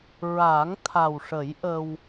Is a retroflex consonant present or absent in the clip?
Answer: present